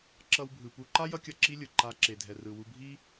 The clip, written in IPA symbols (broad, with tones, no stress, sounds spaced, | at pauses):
ǁ ʌ˧ w bʱ ɯ˨ p u˧ ǃ a˦ j ʌ˦ kʲ ʌ˦˨ ǁ i˦ lʲ ɯ˨ ǃ a˧ ǁ e˨ dʱ ɛ˨ r ɯ˨ w u˧ bʱ i˦